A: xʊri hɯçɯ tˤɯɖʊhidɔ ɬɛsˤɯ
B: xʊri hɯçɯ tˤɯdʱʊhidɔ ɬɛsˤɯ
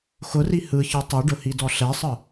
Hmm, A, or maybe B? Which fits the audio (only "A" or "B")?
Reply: A